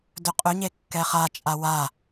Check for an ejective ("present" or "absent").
present